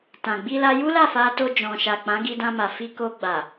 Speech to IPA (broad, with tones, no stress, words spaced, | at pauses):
tã˨ɡ͡bi˧la˧ ju˦la˦˨fa˧to˧ d͡ʒɔ̃˨ʃa˨ k͡pã˨˦ɡi˧dã˧ma˨ fi˧ko˧ ɡ͡ba˨